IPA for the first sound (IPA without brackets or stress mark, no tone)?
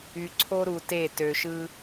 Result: y